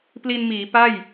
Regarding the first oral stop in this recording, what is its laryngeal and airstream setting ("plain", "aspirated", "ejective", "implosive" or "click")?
plain